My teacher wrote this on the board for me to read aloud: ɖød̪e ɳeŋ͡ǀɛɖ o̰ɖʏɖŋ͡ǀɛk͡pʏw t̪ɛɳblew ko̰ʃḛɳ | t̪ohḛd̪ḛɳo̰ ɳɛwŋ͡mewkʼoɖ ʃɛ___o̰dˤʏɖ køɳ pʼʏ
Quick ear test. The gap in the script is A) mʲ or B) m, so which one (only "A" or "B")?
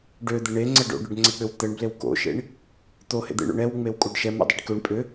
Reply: B